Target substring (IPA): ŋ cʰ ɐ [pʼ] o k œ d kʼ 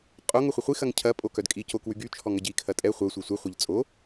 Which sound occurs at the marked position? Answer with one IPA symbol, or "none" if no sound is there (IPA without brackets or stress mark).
pʼ